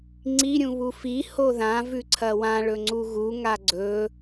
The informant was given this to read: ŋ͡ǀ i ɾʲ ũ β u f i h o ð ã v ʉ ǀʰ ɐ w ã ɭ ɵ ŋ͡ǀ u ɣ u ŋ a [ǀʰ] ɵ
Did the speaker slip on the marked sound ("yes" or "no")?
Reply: yes